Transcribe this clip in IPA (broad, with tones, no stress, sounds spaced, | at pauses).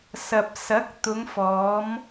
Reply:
s ɐ˨ p̚ s ɐ˨˥ k̚ t̪ ʊ˨˧ ŋ f ɔː˨˧ m